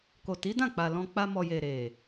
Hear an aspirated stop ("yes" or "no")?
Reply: no